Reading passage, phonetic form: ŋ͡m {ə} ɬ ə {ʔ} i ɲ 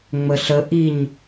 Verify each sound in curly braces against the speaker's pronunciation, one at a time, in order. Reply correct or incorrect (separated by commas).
correct, correct